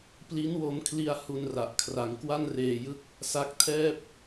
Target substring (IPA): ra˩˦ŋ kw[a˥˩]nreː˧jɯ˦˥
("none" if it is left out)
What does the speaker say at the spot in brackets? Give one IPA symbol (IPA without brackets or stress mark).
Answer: a˥˩